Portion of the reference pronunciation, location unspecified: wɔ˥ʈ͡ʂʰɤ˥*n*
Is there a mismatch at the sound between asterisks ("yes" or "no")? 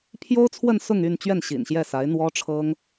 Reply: yes